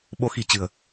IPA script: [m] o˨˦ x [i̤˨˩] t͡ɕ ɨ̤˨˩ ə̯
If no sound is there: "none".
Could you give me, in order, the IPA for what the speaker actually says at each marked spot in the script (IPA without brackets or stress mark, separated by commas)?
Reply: ɓ, i̤˨˩